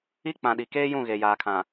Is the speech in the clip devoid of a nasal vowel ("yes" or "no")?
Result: no